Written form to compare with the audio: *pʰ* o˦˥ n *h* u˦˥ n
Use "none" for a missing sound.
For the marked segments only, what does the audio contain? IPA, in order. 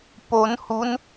p, h

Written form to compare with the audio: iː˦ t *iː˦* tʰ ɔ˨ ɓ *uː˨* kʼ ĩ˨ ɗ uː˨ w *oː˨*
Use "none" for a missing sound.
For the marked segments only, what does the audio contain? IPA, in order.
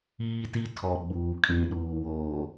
i˦, uː˨, oː˨

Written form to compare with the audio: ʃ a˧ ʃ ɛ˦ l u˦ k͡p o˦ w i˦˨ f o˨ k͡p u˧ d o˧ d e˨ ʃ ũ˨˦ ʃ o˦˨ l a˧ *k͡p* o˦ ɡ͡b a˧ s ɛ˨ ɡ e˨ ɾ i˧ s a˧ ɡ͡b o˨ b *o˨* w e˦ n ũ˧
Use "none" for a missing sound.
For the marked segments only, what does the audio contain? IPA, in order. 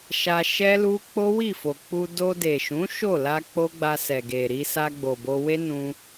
k͡p, o˧

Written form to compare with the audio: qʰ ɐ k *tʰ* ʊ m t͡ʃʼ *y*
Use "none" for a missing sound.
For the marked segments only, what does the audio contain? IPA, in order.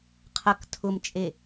tʰ, e

